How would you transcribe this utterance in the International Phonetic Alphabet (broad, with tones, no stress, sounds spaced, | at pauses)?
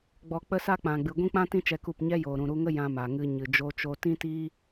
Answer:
ɡ͡b ɔ˧ k͡p ə˦ s a˦ k͡p ã˨ ɡ͡b ɨ˨ ɡʷ ĩ˦ k͡p ã˦ t ĩ˦ t͡ʃ ɛ˧ k u˦˨ p ɲ ɛ˦ j oː˨ ɾ ũ˨ ɾ u˧ ŋ ə˦ j ã˧ m a˨ ŋ ɨ˧ ɲ ɨ˨ d͡ʒ o˧ t͡ʃ o˧ t ĩ˦ t iː˦